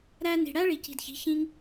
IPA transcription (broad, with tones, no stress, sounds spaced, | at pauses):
ɾ æ˧ n i̤˨ ɽ æ˦ ɭ i˨ c i̤˨ d ç i̤˨˦ ç ĩ˧ ŋ